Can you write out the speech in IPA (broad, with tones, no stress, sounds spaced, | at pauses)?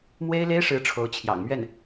m w e˥ ɪ̯ l e˥ ɪ̯ ʂ ɻ̩˧˥ ʈ͡ʂʰ o˧˥ ʊ̯ t͡ɕʰ j ɑ̰˨˩ ŋ m ɥ ɛ˥˩ n